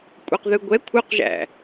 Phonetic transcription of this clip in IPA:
kʷʼɛqðɯɡʷɛ kʷʰœqʒæ̰

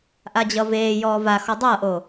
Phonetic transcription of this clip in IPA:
ʔad͡ʑʌveːjɔː va xɔdˤʌːʔoː

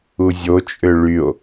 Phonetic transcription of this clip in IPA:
uzʲot͡ʃʼø ɭyo̯

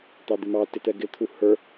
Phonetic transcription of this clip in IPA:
t̪ɑd̪ɪmɑ tɪt̪ɛɡɪ t̪ʰuhə˞

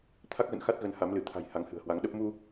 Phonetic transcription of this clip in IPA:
t̪ʰa˦˥k̚ɣə̰˧˨nxa˦˥t̚ɣə˨˦n ha˨˦mlɨ˧˩t̪ʰa̤˨˩j ha˨˦ŋhɨ̤˨˩ə̯hwa˨˦ŋɗə˦˥p̚ mu˧

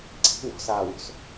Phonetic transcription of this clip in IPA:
ǀi̤ wɔ̤saːwo̤s

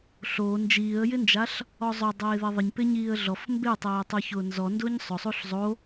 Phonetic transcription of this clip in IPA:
ɬo nd͡ʒiːə̯jɪnd͡ʒaɬ | ɔzˤʊ dˤeːðeðˤɪɲ pɪɲiːə̯ɮɔf mbetˤeː tˤuçʊːnzɔ ndʊːɲsˤʊsˤuɬ zˤo

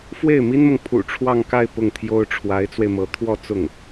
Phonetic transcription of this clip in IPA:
fwe˥˩ɪ̯mi˥nmʊ˨ŋ pʰṵ˨˩ ʈ͡ʂʰwɑ˥˧ŋka˥˧ɪ̯ pʊ˥˩ŋt̪ʰjo˥ʊ̯ ʈ͡ʂʰwa˧˥ɪ̯t͡swe˧ɪ̯mɤ˧˥ t̪ʰwɔ˥˧ t͡sʊ˥˩ŋ

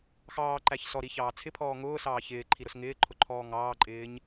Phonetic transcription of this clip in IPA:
xɑːǃæç sɔɾiçɑː t͡sʰɪpʰɔː ŋʊːsɑː çɪːǃʰiɾʊs ŋɪːǃʰʊǃʰɔː ŋɑːǃʼɪːɲ

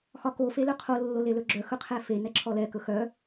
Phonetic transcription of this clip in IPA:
xɒko felœqʰo lːolelɵɡ͡ǁœ xɵqʰɛfe nɛǁʰɔlɛ kɵxœ

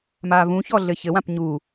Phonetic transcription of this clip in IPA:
mavũçɔ ɮɘçɘwãp ɲu

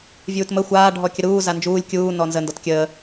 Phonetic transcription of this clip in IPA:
vʲuːtmə xʷaː ɖʱɔkʲəɾuː zand͡ʒuːlʲ kʲuː nɔnzə ndɔtkʲəː

